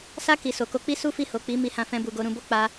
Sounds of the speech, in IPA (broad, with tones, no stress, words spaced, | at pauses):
sa˦ ki˧ so˨ko˧k͡pi˦ su˦fi˦˨ho˨k͡pi˨˦ mi˧hã˧fɛ̃˧bu˨ ɡo˧ɾũ˧bo˦k͡pa˧